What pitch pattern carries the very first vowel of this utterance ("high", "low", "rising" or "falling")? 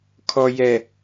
low